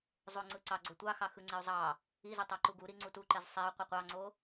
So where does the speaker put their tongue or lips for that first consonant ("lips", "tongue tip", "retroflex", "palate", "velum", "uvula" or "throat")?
tongue tip